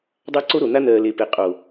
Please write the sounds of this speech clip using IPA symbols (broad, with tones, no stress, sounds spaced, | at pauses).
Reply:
dˤ a˦ ǀ o˦ ɾ o˨ n̪ a˦ n̪ ɜ˨ l e˨ p e˨ qʼ o˨